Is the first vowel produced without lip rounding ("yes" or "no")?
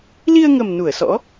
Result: yes